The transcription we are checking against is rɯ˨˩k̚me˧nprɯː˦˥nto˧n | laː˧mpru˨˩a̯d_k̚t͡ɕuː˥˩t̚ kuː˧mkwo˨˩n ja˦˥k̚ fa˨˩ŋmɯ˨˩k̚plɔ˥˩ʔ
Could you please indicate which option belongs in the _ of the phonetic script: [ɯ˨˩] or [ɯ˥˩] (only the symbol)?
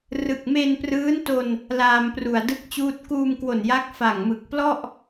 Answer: ɯ˥˩